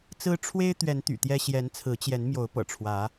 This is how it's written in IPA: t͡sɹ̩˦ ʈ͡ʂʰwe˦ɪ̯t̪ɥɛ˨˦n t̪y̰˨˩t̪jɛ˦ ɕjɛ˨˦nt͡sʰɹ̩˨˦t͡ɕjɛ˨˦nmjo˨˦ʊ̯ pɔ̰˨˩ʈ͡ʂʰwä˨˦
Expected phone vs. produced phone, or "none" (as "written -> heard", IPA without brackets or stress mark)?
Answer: ɔ̰˨˩ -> ɤ̰˨˩